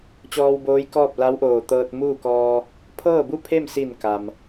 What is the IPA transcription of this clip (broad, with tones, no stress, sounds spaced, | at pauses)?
t͡ɕ ɔː˧ w b oː˧˥ j k ɔː˥˨ p̚ l a˧˥ w ʔ oː˧˩ t̪ ɤː˧ t̚ m uː˥˨ k ɔː˧ | pʰ ɤː˥˨ b u˥˨ pʰ e˥˨ m s i˧˩ n k a˩ m